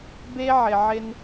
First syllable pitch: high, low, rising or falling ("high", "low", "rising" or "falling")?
high